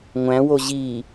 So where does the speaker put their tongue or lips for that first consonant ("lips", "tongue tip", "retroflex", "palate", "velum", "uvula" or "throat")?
velum